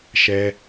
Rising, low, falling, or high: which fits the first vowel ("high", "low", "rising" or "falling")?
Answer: high